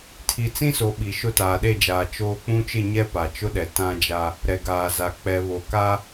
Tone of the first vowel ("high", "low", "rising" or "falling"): low